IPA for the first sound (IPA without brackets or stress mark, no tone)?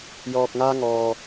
j